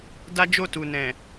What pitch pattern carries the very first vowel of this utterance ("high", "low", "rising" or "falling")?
high